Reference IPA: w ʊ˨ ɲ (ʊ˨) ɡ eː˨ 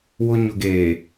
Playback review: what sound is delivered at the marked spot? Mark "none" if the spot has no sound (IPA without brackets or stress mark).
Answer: ʊ˨